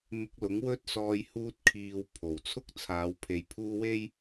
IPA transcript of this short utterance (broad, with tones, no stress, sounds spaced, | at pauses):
m ɪ˧ k̚ l ʊ˨˥ ŋ w ɵ˥ t̚ s ɔː˧ j h uː˧ t̚ kʰ iː˨ w pʰ o˨˩ w t͡sʰ ʊ˥ k̚ t͡sʰ aː˨˧ w pʰ e˨ j pʰ uː˥ w e˥ j